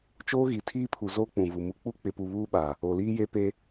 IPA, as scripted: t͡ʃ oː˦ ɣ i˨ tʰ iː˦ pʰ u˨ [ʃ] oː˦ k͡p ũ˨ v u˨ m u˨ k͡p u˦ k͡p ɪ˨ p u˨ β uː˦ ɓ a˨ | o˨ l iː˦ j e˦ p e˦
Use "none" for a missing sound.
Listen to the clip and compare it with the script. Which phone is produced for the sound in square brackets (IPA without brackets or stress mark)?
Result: z